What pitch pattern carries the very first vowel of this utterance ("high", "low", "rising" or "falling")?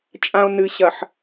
low